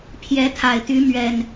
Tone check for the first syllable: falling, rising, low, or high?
rising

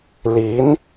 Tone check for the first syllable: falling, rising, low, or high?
rising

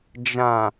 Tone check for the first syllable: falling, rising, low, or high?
low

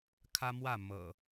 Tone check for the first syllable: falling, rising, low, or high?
high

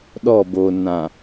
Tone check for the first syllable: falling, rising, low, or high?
falling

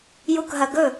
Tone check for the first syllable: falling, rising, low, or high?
falling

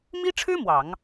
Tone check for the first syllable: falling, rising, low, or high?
high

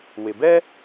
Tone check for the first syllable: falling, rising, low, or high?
low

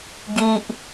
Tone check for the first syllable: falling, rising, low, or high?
high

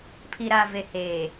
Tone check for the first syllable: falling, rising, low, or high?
low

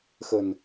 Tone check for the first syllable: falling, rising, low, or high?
low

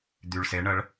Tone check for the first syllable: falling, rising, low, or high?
low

